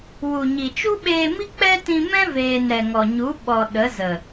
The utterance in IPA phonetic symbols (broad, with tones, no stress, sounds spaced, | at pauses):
w u˨ ɲ i˨ t͡ʃ u˦ ɓ eː˧ m i˦ k͡p ɛ˦ t ĩ˧ m ɛ̃˦ v eː˨ n ɾ ɛ˨ ŋ ɔ˨ ɲ u˨˦ ɓ ɔ˨ ɗ ə˨˦ z ə˨